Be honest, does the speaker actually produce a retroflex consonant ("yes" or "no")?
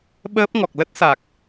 no